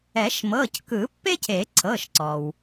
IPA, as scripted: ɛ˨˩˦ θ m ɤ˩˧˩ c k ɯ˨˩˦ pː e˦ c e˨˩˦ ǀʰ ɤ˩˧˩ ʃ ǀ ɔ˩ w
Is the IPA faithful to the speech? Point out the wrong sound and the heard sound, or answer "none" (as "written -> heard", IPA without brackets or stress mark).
θ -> ʃ